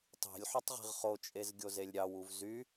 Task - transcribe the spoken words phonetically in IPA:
tˤ i̤ lʲ ħ y tˤ ʁ i̤ ʁ χ o t͡ʃʼ e z ɡʲ o z e lʲ ɾʲ ɑ w u v z y

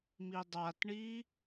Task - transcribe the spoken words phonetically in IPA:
m i dˤ a t ɳ i

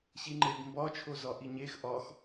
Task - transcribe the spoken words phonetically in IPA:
ɕ i ŋ͡ǃ e b m b ɒ t͡ʃʰ o z ɒ ʔ i ɲ e x ʔ ɒ x

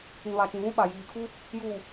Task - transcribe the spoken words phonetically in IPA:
ĩ˨ β a˨ t͡ʃ ĩ˨ β ũ˦ ɓ a˨ j iː˨ kʰ u˦ | j uː˨

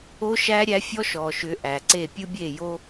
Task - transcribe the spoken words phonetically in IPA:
o˦ ʃ æ˦ ɾʲ æ˦ fʲ ɔ˦ ʃ ɔ˨ ʃ ʏ˨˦ ʔ æ˨ ǀ e˦˨ pʲ ɯ˦ bʲ e˦˨ j o˦

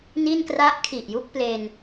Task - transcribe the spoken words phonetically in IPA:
n i˥˩ n k r a˥˩ ʔ kʰ i˨˩ ʔ j u˥˩ k̚ p l e˧ n

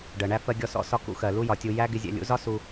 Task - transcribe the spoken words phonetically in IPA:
ɖ ɜ˨ ɳ æ˦ f ɜ˧ ɡʲ ɔ˧ s ɔ̰˦ s ɒ˦ k ṵ˦ x ɜ˨ l u˦ j ɒ˨ tʲ u˧ j æ˦ ɡ ɪ˧ zʲ ɛ̰˨ lʲ ṵ˨˦ z ɒ˦ s u˧

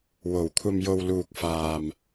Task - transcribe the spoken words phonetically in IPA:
w o˨˩ w kʷʰ ɐ˨ m j o˨ w l uː˨ k̚ f aː˨ m

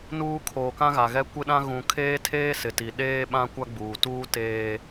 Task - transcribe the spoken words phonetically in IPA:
n uː˨ kʰ oː˨ k ã˦ ɣ a˨ ɣ ɛ˦ kʷ ɪ˦ ɗ ã˦ ɣ ũ˨ kʰ eː˦ tʰ eː˦ s ɪ˨ t i˨ ɗ eː˦ ɓ ã˦ kʷ a˦ ɡ͡b uː˨ t uː˦ t eː˦

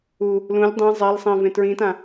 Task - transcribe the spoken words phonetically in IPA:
u | l ũ lʲ dˤ ẽ zˤ a l sˤ ẽ v ẽ t ɹ ĩ t ã

